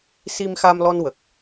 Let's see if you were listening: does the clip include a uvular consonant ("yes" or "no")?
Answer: no